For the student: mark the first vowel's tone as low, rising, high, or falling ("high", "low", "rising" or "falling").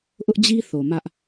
high